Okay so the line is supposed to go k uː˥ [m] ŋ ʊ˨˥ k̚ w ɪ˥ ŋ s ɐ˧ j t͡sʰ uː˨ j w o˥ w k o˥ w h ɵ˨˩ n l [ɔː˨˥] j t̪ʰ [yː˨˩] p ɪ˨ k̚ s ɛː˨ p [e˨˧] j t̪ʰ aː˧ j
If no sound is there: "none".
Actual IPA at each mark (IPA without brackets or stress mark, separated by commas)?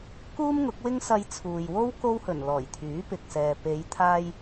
m, ɔː˨˩, yː˨˥, e˨˧